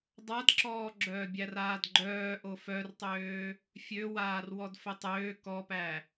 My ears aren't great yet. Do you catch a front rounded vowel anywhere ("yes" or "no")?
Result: yes